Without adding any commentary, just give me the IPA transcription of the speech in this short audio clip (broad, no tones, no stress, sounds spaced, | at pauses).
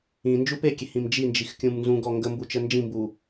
ĩ n d͡ʒ u p e kʲ e h ĩ m d͡ʒ i n d͡ʒ i x kʲ ũ m n z ũ ɡ ɔ ŋ ɡ ə m b u t͡ʃ ə n d͡ʒ ĩ m b u